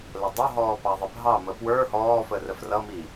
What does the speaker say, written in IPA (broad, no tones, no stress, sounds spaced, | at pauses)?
l ə dˤ ə ɦ ɔː p ɑ ðˤ ɪ bʱ ɑ m ə p w ə˞ h ɔː f ə r ə f r ʌ m i